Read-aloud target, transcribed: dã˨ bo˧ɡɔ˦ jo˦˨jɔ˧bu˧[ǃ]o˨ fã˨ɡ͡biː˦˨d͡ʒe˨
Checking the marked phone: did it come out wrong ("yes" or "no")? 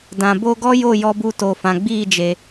yes